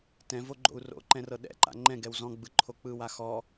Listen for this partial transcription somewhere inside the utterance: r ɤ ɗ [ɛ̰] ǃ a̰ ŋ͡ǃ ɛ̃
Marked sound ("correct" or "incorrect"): correct